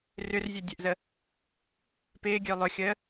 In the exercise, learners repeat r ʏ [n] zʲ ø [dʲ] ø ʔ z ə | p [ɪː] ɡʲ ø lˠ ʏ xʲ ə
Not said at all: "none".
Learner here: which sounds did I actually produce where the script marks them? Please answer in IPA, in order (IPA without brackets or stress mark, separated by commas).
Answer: r, dʲ, ɪː